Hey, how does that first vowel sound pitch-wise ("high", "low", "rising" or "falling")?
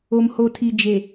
low